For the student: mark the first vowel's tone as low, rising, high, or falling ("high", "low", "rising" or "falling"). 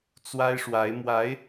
high